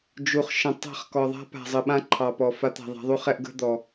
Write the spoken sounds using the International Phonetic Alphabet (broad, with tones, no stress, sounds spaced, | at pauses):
d͡ʒ u˨ χ ʃ ə̃˨ tˤ a̤˦˨ χ k ɔ˨ ðˤ a̤˦ p a̤˨ zˤ ə˨ ɓ ã˦ ǃʰ ɑ˨ p ɔ˨ f a˨˦ t̪ a̤˨ ðˤ a̤˨˦ ðˤ u˦ χ ɛ˦ ʔ ɡ ə̤˦ d̪ ɔ˨